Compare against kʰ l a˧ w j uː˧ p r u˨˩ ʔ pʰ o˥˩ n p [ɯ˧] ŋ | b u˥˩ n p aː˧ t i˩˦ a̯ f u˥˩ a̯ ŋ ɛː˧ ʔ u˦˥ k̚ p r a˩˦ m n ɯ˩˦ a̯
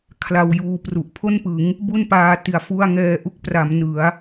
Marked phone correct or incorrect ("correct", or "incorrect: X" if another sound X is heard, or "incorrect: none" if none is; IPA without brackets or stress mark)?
incorrect: ɯ˩˦